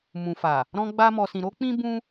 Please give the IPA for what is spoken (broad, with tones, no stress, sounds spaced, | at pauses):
m ũ˨ f a˨ | ɾ ɔ̃˦ ɡ͡b a˦ m ɔ˧ s ĩ˧ ɾ o˦ k͡p ĩ˦ b ũ˦